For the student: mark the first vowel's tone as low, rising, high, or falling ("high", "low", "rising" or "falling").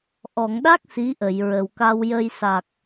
low